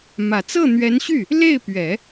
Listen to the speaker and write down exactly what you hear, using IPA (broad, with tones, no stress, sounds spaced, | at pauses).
m ä˨˩ t͡s ɤ˥˩ n̪ ɥ ɛ˧˥ n ɕ y˥˩ | l e˥˩ ɪ̯ p ɥ ɛ˨˩˦